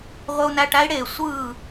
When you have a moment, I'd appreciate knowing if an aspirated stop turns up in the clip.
no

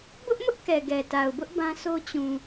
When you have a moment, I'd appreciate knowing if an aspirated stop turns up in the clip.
no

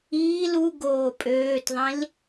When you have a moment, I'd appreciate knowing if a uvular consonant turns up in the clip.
no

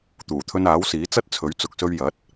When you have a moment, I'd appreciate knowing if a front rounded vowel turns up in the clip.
no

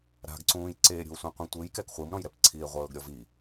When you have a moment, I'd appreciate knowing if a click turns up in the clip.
yes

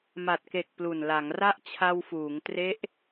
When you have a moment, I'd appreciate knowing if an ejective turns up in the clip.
no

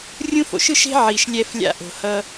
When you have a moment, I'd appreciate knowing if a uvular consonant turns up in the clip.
no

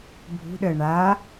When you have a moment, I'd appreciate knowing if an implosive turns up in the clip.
yes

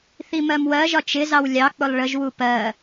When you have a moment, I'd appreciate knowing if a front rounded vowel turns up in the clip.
no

